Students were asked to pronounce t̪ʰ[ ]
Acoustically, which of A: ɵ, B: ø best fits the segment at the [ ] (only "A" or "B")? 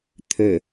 B